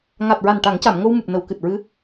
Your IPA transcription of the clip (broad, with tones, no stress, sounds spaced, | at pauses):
ŋ a˨˩ t̚ ɹ a˨˩ n ʈ a˨˩˦ ŋ c a˨˩˨ m ŋ o˧ w m u˨˩ p̚ n ə˨˩˨ w k ɨ˨˩ t̚ ɹ ɨ˧˥